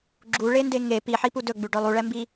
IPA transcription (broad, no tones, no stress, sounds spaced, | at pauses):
ɡ͡ǁ u ɭ e n d e ŋ e p i ħ i p u d ɵ ɡ͡b ʉ ɖ œ lˠ u ɭ ɛ m b i